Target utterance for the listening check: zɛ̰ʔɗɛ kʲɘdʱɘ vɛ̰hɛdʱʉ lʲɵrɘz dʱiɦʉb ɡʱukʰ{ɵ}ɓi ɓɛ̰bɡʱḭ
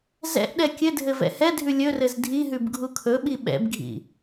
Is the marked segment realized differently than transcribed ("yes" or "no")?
no